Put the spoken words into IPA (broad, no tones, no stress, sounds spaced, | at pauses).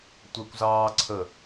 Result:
tʷ ɛ kʷ z ɑː ǀʰ ə